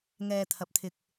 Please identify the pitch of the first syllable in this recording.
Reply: low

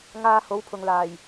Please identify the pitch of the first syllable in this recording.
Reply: low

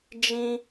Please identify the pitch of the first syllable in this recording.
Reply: high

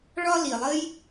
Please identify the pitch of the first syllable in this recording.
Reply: high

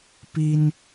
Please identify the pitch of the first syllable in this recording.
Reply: high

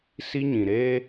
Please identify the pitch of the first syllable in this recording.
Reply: high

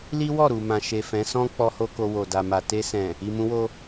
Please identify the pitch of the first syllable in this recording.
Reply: high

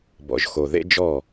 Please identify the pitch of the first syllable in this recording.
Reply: low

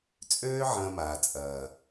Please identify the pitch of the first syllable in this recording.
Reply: high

